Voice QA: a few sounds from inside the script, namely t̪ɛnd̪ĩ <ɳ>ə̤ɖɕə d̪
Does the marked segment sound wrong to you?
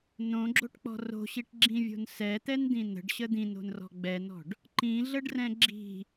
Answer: yes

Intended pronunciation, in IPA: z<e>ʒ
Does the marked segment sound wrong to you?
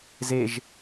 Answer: no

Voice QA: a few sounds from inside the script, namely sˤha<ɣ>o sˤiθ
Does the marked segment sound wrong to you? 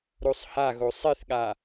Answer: no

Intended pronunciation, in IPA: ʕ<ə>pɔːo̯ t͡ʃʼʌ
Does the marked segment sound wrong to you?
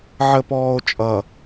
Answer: no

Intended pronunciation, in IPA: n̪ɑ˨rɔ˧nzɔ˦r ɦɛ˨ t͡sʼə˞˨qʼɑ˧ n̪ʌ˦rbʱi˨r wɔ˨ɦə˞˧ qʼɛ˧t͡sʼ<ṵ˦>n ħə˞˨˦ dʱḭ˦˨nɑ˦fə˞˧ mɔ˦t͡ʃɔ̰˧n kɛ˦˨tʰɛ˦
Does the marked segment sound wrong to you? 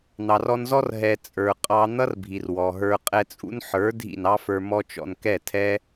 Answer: no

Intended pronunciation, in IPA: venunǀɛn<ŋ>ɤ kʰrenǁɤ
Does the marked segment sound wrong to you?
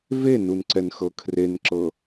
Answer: yes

